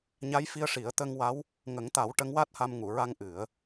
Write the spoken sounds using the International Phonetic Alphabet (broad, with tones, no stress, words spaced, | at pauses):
ɲa˧˥jfi˧ə̯ʂi˨˩˦ə̯ t̪ə˧ŋwa˧˥w | ŋə˨˩˦ŋt̪a˨˩˦w ʈə˧˥ŋwa˦˥t̚ha˧m ŋu˨˩˨ɹa˧ŋ ʔɨ˨˩˦ə̯